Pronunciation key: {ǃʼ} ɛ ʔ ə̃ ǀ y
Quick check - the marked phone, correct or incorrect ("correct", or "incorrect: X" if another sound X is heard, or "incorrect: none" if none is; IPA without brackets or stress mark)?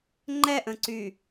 incorrect: ŋ͡ǃ